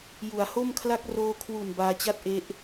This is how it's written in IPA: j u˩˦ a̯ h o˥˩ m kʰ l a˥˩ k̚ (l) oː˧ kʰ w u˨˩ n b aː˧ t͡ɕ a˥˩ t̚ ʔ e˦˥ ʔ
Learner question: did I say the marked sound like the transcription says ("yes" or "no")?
no